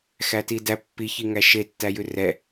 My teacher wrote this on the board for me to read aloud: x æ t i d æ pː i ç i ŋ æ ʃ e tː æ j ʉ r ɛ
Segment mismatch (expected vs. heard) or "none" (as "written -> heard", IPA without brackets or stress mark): none